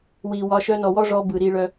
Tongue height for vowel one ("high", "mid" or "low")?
high